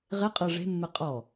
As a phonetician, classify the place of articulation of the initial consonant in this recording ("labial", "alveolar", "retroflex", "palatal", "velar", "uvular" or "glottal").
uvular